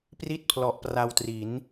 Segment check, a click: absent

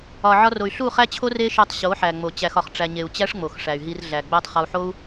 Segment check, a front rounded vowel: present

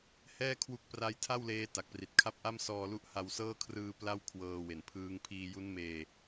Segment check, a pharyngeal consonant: absent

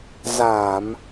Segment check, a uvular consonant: absent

